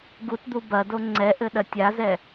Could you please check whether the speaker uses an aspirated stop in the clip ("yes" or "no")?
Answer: no